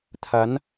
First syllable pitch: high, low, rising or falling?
rising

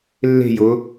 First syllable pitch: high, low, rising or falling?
falling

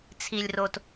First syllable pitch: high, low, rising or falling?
low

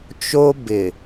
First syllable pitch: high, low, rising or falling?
high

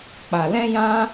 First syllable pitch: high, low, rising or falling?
low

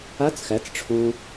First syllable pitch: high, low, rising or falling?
rising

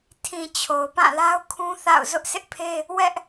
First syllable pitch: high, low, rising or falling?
low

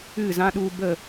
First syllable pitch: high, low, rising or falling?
falling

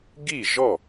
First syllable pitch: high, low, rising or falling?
falling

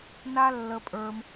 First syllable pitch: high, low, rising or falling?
high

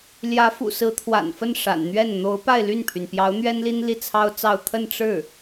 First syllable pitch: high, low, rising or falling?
rising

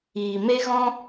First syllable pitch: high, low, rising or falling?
low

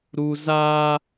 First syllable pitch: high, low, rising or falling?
high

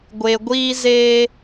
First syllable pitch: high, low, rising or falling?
low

